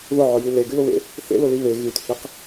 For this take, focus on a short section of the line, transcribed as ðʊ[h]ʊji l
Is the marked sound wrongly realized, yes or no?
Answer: yes